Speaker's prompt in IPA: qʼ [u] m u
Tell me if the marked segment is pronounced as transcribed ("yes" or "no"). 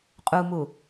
yes